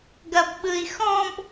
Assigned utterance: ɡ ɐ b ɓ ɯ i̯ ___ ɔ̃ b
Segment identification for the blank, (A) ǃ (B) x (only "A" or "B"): B